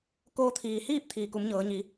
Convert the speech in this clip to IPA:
k oː˧ t̪ʰ iː˩ h iː˥˨ p̚ t̪ʰ iː˩ k u˩˧ m ɲ ɤː˩˧ ɲ i˩˧

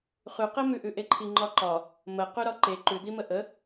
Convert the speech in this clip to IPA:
χ ʉ q e m ʉ ʔ ʉ ʔ e ǃʰ i ŋ͡ǃ ɒ ǃ ɒ | m ə q ʉ ɾ ɒ ǃ e ǃ ʉ d̪ i m ə ʔ ə

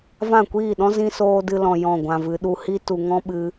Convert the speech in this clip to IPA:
v ã˦˨ kʷ iː˦˨ ɗ ɔ̃˦ z ĩ˧ s oː˧ d ɨ˧ l ɔ̃˨ j ɔ̃˦˨ ɡʷ ã˧ v ɨ˨˦ ɗ u˧ h i˦ t u˨ ŋ ɔ̃˦ ɓ ɨ˧

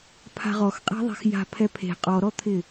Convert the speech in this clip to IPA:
pʰ a̤ ʁ ɔ x qʼ e̤ ðˤ e̤ x j a̤ pʰ ɛ pʰ e̤ qʼ ɔ ɾ ɔ t̪ʰ ɪ

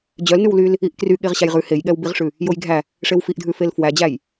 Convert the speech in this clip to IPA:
d͡ʑ œ l n ʉ w l y l | i ʔ k r y ɠ e ʁ ɕ æ j ʁ ʉ h e j ɠ ɛ w b i ʁ ʂ ʉ | j o j ɡʱ æ | ʂ e w f i ʔ dʱ ʉ f e l f w æ d͡ʑ æ j

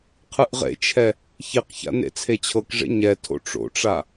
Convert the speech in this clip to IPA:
qʰ ɯ ʔ ʁ ḛ t͡ʃʰ ɛ | ç i q ç a̰ n ḛ t͡sʰ e t͡ɕʰ ɤ k ʐ ḛ ɲ ɛ tʰ o̰ ʈ͡ʂ o̰ ʈ͡ʂ a

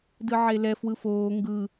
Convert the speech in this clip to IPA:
d ɯ ʕ e l ɛ f w ɯ f oː ŋ ɡ ɯ

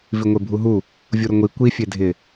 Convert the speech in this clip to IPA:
v i ŋʷ e bʱ u ɦ u | vʲ u ɾ ʊ ŋʷ i kʷ i fʲ e dʱ ɪ

